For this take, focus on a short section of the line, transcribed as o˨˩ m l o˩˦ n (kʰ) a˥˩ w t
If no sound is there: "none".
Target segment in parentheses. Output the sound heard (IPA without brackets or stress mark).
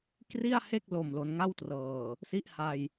ŋ